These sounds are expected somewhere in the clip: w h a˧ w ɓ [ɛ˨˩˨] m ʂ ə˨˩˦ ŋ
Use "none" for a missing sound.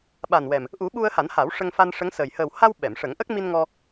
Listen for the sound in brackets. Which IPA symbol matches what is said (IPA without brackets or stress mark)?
ɛ˨˩˨